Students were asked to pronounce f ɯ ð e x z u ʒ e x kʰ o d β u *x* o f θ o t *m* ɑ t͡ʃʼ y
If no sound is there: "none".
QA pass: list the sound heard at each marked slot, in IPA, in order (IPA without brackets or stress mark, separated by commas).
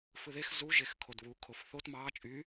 kʰ, m